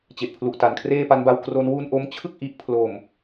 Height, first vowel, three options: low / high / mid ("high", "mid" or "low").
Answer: mid